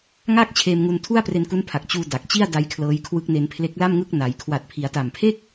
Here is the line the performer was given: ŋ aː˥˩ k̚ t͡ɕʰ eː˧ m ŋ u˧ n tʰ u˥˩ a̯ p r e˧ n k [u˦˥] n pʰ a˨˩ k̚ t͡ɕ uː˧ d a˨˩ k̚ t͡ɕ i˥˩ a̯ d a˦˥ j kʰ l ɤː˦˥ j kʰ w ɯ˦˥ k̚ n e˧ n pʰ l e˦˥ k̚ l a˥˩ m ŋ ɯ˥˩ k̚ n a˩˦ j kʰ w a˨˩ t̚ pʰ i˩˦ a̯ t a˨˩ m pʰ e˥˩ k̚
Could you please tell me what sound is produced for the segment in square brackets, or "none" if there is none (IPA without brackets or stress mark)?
u˦˥